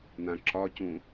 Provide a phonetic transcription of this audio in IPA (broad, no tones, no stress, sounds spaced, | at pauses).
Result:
n̪ ã ǁ ɒ c ũ